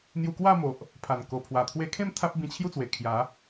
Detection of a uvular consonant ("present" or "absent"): absent